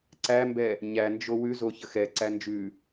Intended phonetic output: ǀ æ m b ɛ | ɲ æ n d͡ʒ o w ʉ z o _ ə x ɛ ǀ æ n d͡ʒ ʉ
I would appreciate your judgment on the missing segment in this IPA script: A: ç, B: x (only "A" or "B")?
A